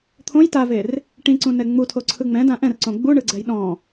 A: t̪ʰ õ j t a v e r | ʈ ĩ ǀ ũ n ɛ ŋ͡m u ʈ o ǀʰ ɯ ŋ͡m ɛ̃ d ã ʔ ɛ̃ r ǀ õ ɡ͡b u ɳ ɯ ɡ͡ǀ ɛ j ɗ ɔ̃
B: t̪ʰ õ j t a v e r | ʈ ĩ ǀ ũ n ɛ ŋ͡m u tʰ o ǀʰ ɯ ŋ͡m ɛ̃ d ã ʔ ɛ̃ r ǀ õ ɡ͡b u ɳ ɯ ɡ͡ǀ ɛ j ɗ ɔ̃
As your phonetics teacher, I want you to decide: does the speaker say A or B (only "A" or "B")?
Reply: B